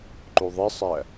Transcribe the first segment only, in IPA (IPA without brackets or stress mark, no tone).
ǃ